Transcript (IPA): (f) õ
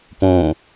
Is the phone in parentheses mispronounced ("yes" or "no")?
yes